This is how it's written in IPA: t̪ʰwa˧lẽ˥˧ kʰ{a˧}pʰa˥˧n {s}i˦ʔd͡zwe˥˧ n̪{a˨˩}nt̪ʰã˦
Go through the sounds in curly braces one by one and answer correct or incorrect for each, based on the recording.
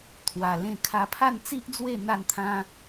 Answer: correct, incorrect, incorrect

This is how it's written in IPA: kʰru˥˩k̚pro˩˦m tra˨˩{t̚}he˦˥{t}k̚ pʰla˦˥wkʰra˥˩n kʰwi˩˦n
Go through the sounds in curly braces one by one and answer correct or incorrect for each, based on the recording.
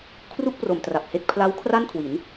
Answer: incorrect, incorrect

